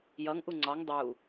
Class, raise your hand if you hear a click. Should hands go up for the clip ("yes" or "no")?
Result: yes